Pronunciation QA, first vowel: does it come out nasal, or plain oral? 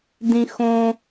nasal